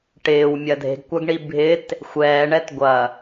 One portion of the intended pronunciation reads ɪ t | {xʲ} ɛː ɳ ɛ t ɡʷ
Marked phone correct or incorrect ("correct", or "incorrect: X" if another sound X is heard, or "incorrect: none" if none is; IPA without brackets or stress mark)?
incorrect: xʷ